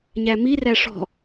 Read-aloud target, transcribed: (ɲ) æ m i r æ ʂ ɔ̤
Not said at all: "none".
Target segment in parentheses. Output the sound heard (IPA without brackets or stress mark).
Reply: ɲ